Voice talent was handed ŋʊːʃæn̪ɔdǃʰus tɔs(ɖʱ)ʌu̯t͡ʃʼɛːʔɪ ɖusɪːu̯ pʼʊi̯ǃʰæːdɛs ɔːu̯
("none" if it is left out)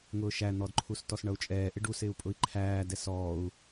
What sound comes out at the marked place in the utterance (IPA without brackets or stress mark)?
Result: ɳ